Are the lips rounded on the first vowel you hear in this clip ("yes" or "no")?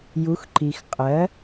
yes